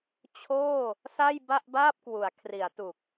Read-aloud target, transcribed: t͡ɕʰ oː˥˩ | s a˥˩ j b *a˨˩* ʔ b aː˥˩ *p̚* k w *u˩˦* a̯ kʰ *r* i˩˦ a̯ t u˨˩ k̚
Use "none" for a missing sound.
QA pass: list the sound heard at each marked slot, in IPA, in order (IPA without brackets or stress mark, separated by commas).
a˥˩, p̚, u˩˦, r